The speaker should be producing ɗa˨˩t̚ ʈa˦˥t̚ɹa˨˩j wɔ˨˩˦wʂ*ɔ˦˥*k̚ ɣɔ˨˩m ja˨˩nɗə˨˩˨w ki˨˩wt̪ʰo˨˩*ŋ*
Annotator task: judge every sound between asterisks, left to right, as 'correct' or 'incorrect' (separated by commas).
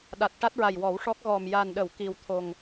correct, correct